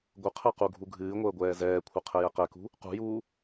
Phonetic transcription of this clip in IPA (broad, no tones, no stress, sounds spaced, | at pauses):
ɡʷ ə qʰ ɛ q u ɡʱ u ɡʱ ɨː ŋʷ əː ɡʷ ɛː z ɛː kʷʰ ə qʰ ɛ j ɛ q ɛ k ṳ | q ṳ j uː